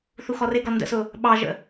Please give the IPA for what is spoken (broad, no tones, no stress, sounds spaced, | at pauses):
θ u x ɔ r ɪ ɡ ɔ n d ə̰ s ʊ | ɓ ɑ ʒ ə̰